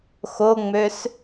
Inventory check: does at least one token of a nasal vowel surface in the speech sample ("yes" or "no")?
no